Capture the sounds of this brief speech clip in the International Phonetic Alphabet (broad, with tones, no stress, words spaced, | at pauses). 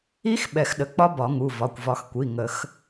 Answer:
i˦˥x ɓɛ˨˩˦xɗə˩˧˩k͡pɒ˦˥ bɒ˨˩˦ŋu˩˧˩vɒ˩˧˩kʷ vɒ˨˩˦xkʷi˩˧˩ ŋə˨˩˦x